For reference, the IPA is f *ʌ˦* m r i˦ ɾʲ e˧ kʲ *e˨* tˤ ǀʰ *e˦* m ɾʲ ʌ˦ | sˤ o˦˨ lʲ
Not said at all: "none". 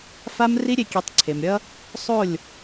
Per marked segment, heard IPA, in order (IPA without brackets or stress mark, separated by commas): a˦, e˨˦, e˨